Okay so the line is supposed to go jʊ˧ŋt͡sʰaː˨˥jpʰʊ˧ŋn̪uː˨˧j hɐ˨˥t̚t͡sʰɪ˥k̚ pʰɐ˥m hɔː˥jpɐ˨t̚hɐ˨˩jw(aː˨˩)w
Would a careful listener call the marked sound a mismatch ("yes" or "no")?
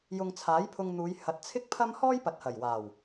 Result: no